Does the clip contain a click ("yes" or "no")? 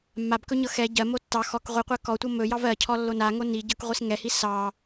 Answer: no